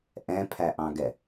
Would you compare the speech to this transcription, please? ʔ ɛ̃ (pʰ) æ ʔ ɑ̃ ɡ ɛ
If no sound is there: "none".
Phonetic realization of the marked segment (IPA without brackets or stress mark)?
pʰ